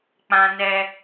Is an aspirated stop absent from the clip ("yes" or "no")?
yes